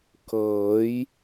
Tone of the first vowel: rising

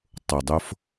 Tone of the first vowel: low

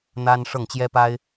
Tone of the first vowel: high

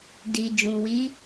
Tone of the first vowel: low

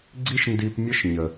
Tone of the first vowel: high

